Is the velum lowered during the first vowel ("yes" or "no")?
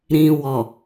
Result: yes